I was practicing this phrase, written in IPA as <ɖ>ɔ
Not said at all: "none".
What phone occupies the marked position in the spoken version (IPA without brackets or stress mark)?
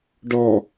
ɖ